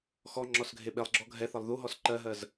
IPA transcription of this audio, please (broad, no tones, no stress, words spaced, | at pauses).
xɔ ŋ͡ǁɔsɡʱeɓelˠɡ͡ǁɔ ɡʱɛθɐlˠ ðuɦɔs ǃɜɦɜz